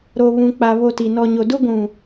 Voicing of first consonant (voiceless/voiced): voiced